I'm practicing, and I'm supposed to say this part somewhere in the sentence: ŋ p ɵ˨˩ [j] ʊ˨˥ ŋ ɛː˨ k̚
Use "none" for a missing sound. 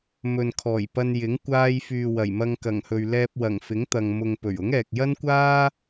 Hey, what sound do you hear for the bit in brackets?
ɥ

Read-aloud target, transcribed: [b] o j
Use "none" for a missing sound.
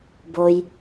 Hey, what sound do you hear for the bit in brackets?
b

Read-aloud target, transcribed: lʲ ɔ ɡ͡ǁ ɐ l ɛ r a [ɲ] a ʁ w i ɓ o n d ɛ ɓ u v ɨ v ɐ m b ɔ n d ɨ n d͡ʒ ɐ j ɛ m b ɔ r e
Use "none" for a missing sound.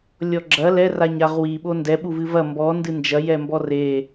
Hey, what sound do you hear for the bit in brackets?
ɲ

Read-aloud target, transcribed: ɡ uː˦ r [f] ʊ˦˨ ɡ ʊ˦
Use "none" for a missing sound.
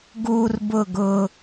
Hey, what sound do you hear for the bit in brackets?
b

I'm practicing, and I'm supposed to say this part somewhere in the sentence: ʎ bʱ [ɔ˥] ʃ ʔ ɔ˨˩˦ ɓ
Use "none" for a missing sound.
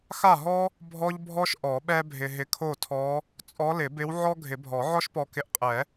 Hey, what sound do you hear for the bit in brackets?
ɔ˥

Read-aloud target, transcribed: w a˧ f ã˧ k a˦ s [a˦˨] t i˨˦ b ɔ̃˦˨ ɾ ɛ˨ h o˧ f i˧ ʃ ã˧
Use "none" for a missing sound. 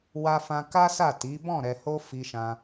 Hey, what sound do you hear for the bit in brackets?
a˦˨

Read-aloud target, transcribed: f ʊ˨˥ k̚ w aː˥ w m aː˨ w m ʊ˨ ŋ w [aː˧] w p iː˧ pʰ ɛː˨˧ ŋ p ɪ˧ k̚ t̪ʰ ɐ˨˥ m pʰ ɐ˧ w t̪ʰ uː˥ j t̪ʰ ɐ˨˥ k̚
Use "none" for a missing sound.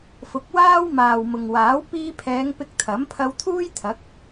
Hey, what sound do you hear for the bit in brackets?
aː˨˥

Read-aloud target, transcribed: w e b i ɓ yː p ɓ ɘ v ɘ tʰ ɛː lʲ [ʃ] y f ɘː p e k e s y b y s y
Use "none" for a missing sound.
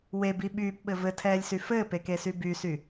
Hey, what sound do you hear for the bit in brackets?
s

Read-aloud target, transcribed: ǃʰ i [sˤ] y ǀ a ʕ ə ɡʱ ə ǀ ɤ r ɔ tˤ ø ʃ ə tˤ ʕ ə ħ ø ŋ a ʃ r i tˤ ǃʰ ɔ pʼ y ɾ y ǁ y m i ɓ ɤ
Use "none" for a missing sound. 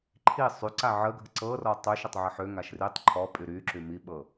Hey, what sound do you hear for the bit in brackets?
sˤ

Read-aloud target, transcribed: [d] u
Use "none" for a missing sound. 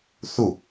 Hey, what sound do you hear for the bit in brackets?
θ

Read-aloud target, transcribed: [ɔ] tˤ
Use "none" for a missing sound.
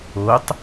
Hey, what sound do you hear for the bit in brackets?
o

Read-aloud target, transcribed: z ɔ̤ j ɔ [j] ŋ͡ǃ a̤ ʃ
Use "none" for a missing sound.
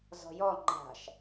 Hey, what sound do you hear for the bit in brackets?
none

